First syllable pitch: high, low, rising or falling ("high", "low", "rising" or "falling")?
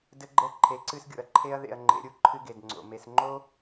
high